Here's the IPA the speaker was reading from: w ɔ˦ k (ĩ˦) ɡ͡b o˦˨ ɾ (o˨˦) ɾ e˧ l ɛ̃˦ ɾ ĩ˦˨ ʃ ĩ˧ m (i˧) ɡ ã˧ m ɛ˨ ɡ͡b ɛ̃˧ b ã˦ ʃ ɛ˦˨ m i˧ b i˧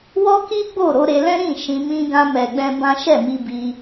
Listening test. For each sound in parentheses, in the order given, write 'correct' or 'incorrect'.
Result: incorrect: i˦, correct, incorrect: ĩ˧

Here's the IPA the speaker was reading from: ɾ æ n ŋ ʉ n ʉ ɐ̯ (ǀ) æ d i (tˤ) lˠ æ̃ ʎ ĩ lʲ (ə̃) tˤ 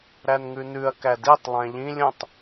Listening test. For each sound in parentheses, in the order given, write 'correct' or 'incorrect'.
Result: incorrect: k, correct, correct

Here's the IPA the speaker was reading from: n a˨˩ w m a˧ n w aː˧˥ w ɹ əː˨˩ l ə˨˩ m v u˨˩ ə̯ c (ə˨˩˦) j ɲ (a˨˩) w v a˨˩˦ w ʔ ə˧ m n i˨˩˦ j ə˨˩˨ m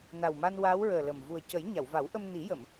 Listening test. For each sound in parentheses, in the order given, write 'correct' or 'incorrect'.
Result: correct, incorrect: a˨˩˨

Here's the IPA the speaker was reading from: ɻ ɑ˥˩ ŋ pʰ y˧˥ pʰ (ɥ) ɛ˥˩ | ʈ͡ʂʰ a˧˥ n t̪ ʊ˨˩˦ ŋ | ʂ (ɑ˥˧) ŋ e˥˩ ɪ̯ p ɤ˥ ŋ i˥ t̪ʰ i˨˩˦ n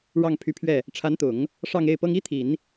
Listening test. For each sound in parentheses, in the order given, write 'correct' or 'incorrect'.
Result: correct, correct

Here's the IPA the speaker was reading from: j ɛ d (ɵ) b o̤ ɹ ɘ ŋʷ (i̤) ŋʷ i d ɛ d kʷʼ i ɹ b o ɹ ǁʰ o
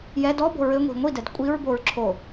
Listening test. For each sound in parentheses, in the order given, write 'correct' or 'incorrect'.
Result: incorrect: ɔ, correct

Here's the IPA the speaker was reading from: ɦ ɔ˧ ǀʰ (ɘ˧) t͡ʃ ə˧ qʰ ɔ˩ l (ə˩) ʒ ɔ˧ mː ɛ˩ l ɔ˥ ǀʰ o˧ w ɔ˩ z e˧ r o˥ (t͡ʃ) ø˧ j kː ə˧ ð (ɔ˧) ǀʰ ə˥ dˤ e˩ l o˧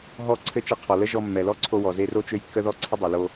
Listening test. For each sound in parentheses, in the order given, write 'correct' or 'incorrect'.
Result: correct, incorrect: ə˥, correct, correct

